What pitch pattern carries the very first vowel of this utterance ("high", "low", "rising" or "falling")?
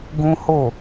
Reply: high